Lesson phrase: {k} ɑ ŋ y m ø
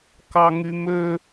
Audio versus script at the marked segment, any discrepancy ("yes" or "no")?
no